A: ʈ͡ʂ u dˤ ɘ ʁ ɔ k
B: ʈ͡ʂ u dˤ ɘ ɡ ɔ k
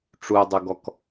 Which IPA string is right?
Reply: B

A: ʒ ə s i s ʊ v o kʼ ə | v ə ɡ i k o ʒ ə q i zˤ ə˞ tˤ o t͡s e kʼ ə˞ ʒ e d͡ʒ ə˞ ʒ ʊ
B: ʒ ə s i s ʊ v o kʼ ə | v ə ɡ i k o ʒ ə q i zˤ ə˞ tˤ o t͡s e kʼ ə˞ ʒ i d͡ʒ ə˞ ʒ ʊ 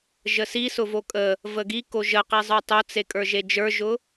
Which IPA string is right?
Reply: A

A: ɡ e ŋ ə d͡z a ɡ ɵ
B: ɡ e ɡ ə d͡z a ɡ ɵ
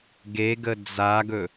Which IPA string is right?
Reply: B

